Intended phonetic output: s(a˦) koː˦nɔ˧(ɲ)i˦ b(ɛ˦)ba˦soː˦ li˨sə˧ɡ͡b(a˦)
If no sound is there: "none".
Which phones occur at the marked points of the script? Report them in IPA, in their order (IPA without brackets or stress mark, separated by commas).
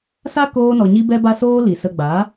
a˦, ɲ, ɛ˦, a˨˦